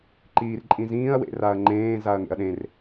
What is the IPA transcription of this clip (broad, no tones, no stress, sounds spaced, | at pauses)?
ǃ iː r ǃʼ ĩ z ĩː ɐ̯ w ḛ r a ɐ̯ ŋ͡ǃ ẽː z a ɐ̯ ŋ ḛ ɐ̯ ɗ ẽ r